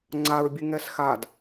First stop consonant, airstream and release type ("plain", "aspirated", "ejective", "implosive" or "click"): click